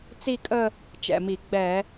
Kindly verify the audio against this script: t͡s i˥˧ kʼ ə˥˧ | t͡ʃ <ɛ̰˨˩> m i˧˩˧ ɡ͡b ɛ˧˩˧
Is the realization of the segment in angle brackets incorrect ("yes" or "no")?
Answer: no